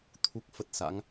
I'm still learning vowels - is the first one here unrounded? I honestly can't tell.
no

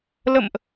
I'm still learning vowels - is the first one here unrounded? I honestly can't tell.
yes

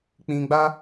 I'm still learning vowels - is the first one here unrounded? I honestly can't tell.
yes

